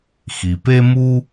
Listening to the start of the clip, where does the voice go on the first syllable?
low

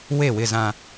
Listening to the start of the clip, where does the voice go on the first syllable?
falling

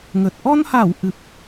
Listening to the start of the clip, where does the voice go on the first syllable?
low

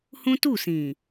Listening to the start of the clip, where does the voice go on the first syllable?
high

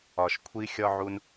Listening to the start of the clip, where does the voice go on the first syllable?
low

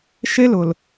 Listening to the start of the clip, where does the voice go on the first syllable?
high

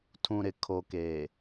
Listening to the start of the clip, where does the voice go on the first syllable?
low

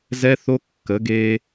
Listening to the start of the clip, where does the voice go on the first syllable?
high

